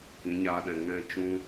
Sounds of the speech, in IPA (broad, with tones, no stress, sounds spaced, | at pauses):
k ĩ˨˦ ɲ aː˧ ɗ ɛ̃˨ ŋ ɛ̃˦˨ t͡ʃ ũ˦